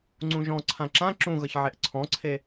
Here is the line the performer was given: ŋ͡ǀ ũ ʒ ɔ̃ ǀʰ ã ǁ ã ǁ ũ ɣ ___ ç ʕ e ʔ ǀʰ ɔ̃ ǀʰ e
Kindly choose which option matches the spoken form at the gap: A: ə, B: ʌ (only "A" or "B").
B